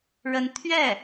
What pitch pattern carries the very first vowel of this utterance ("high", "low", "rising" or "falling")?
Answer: rising